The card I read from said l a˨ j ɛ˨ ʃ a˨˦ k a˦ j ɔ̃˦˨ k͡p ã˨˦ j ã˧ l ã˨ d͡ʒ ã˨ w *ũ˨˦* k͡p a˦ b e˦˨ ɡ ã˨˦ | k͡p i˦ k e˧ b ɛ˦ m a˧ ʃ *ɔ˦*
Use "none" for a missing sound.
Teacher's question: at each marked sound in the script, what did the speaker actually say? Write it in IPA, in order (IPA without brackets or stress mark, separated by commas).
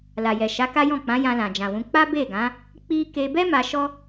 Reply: ũ˨˦, ɔ˦